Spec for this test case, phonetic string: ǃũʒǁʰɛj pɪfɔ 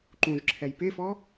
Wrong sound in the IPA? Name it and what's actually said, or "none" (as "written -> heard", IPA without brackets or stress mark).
none